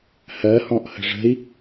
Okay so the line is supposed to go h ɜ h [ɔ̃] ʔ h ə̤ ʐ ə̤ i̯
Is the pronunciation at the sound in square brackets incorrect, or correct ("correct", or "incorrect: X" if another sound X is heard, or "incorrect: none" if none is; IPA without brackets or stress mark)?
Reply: correct